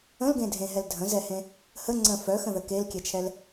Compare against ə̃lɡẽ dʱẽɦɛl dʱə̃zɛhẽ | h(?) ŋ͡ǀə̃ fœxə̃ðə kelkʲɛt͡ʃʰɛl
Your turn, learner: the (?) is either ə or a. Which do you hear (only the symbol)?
ə